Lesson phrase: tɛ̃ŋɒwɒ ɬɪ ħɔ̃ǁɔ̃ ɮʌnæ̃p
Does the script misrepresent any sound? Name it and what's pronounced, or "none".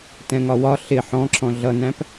none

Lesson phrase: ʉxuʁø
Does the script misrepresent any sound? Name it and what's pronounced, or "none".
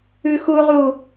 ø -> u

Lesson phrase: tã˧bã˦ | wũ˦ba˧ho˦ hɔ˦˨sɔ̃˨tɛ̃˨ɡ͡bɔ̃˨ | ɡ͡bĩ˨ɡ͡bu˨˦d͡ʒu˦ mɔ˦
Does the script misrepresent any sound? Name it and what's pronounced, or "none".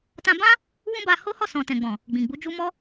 none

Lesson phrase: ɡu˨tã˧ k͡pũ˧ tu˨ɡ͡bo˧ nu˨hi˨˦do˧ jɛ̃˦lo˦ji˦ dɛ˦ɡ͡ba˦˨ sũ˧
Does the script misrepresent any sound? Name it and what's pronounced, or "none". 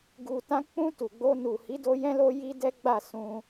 none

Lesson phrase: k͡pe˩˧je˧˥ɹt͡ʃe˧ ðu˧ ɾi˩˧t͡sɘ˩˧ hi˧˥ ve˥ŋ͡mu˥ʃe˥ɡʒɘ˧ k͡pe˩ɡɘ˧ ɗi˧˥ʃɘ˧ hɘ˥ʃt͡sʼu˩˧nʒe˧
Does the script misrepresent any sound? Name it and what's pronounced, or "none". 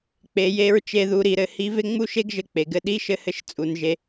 t͡s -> ɾ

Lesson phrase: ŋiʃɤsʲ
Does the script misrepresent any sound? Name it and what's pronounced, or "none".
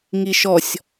ɤ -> ɔ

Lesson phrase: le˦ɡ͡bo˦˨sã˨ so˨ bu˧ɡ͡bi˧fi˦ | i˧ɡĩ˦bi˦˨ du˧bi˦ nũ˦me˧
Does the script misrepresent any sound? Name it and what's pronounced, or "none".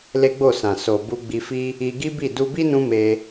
ĩ˦ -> i˦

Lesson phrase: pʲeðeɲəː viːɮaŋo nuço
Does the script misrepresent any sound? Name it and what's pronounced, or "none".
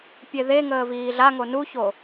ɲ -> ŋ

